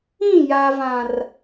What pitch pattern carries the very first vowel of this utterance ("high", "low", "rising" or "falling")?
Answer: falling